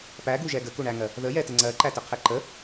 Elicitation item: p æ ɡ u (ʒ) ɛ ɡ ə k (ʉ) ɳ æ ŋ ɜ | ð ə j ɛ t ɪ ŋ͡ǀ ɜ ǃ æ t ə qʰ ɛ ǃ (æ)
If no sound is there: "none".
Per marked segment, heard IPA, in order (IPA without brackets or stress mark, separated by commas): ʒ, u, ə